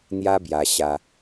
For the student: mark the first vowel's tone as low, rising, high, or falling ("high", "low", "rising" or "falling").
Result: high